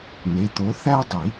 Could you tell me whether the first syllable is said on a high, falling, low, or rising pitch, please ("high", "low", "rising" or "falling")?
rising